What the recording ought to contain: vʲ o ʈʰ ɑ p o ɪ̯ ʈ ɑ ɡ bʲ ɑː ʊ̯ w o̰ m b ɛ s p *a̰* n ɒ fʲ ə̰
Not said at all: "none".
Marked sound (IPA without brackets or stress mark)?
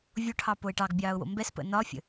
ə̰